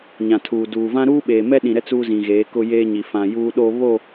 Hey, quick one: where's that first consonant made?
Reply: palate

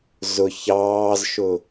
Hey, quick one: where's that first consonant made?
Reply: tongue tip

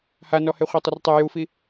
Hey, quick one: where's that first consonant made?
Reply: throat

